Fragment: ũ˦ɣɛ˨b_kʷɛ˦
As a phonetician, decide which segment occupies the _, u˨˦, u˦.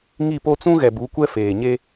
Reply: u˨˦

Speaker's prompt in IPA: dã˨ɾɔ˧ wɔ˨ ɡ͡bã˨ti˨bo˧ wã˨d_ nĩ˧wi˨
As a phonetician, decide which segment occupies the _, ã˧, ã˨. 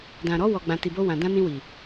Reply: ã˧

